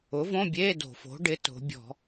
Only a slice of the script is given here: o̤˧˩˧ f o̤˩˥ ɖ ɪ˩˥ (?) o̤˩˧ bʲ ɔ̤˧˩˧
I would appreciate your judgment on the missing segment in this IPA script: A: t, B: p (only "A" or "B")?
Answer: A